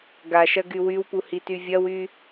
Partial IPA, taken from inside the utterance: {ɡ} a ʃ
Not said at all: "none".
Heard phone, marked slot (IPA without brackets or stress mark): ɡ